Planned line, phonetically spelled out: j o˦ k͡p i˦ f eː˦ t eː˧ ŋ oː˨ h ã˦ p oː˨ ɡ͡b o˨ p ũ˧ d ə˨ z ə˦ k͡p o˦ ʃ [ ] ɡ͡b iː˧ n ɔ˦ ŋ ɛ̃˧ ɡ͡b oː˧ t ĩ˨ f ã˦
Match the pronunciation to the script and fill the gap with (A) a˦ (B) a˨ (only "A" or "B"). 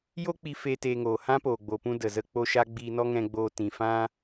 A